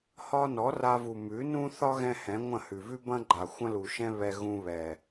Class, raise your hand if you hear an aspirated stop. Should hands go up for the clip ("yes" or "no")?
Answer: no